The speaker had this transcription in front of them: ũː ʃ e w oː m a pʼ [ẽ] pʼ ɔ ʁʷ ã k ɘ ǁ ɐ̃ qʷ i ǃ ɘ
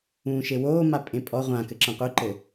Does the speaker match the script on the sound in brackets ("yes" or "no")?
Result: yes